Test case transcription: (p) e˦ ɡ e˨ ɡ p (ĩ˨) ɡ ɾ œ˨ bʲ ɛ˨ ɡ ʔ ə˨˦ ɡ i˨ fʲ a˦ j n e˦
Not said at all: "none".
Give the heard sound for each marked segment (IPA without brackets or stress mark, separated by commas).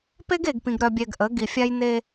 p, ĩ˨